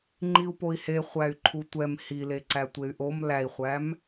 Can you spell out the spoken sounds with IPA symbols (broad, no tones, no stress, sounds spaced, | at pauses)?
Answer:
ŋ͡ǃ i u̯ p o i̯ h e χʷ æ y̯ ǃʰ u tʷ ɛ m h i l e ǀ æ tʷ e y̯ ʔ o m l æ i̯ χʷ æ m